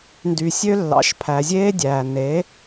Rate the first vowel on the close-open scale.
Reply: close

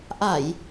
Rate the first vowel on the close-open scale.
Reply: open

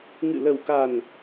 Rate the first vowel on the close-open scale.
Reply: close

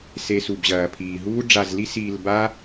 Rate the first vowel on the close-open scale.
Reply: mid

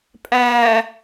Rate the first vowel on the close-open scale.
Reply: open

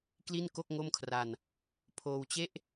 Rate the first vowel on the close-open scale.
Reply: close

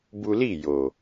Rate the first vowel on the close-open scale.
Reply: close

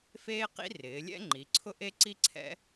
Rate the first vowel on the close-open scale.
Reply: mid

